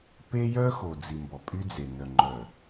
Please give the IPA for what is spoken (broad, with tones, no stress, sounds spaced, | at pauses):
p e˦ j œ˦ x o˨ d͡z i˨ m b ɔ˨ pʼ y˦ d͡z e˨ n œ˨ ŋ͡ǃ œ˨